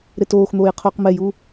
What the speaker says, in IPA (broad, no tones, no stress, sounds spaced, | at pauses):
ɾ e t oː x n̪ oː j qʰ uː q m ɛː j uː